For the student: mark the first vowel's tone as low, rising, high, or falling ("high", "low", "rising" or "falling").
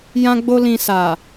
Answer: high